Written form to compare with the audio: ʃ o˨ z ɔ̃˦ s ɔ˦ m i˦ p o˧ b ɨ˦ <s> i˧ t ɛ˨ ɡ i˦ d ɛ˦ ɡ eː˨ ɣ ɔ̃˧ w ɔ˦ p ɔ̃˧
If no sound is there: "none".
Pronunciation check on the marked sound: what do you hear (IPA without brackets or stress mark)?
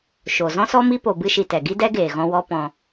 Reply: ʃ